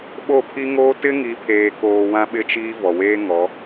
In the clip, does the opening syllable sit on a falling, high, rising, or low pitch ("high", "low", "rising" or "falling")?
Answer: falling